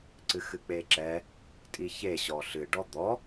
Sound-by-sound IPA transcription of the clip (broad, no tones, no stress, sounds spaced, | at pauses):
ǀ ɨ x ɨ k͡p e ǁ ɛ | tʼ i ç e ɕ ɔ ɬ ɨ ɖ ɔ d̪ ɔ